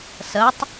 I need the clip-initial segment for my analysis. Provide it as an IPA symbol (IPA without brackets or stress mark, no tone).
s